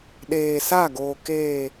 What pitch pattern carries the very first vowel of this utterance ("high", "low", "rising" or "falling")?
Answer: low